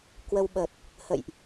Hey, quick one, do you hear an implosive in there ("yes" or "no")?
yes